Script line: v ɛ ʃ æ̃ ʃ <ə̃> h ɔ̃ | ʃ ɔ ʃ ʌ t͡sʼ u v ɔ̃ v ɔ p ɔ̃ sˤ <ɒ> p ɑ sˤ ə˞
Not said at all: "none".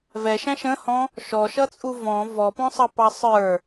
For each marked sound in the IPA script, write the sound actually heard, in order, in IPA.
ə̃, ʌ

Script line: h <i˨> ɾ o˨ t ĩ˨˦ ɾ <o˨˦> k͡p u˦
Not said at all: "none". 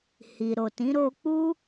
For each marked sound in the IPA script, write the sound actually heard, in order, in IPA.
i˨, o˧

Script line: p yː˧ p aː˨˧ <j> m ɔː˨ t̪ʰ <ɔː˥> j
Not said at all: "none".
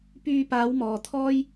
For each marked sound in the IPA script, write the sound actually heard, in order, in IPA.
w, ɔː˥

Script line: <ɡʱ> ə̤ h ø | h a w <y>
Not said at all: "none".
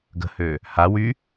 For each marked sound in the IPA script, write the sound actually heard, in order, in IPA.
ɡ, y

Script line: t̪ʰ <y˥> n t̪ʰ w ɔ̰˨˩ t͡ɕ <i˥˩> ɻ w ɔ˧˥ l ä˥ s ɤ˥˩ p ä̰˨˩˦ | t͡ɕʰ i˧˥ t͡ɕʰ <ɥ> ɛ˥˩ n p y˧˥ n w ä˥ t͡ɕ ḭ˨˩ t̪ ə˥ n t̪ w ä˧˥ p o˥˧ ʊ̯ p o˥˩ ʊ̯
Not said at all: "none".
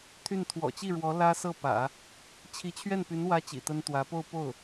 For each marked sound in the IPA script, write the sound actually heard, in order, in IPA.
y˥˩, i˥˩, ɥ

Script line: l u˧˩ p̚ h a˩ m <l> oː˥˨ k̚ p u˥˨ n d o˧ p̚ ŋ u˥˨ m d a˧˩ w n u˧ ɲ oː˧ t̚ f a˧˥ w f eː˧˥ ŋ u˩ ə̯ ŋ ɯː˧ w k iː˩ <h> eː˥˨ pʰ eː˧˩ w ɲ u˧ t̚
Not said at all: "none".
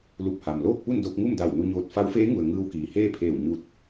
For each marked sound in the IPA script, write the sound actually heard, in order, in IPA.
l, h

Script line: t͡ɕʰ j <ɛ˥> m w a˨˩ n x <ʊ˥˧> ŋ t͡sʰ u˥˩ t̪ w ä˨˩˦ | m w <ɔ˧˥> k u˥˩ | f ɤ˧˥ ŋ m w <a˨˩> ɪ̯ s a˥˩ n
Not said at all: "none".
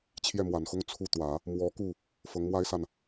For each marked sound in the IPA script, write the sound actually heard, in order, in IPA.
ɛ˥˩, ʊ˥˧, ɔ˧˥, a˥

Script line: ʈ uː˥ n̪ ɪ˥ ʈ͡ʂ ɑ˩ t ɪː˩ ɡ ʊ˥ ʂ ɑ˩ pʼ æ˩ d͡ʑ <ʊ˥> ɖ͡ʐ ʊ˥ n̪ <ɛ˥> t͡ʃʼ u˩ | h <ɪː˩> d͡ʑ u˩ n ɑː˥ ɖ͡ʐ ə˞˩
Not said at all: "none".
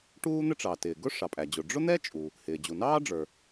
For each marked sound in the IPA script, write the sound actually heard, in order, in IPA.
ʊ˩, ɛ˥, ɪː˩

